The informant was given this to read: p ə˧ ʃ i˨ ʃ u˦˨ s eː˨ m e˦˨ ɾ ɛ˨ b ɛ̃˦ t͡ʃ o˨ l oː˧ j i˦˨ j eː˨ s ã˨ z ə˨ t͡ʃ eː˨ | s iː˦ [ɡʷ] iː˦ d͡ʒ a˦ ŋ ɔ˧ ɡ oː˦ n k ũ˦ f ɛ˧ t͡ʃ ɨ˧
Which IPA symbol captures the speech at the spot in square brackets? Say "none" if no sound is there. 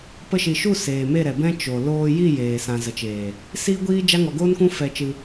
ɡʷ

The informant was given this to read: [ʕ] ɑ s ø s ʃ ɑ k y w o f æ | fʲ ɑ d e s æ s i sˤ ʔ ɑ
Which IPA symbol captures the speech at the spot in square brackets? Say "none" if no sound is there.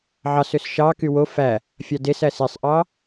ʕ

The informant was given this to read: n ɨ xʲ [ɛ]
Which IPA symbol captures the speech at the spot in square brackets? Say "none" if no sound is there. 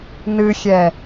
ɛ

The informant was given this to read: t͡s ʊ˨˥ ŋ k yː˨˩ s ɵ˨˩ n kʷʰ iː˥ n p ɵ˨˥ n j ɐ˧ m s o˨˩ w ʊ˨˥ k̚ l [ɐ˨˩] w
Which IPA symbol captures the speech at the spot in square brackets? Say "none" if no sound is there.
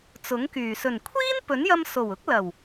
ɐ˨˩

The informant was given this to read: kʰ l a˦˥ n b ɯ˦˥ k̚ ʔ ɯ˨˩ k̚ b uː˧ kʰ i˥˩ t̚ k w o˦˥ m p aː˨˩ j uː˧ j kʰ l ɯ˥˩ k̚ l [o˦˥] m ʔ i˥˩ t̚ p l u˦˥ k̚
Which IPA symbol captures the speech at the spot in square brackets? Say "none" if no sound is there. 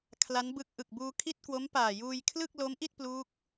o˦˥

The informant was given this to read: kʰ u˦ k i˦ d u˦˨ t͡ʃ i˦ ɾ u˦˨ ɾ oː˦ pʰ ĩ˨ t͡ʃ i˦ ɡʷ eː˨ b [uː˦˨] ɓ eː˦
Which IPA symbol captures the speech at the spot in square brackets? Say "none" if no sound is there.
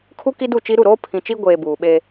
uː˨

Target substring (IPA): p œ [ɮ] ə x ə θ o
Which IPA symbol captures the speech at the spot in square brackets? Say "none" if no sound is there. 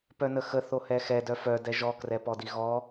n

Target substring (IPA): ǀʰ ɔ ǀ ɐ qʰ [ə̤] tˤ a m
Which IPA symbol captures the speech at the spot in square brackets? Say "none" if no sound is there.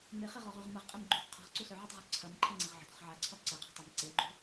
ɛ̤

